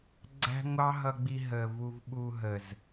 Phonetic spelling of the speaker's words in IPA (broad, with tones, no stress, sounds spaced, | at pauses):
ɡ͡ǀ æ̤˦ ŋʷ ɑ˦ ɦ ʌ˧ ɡ͡b i˧ ɦ ə˨ v u˧ v ɓ u˧ ɦ ə˨ z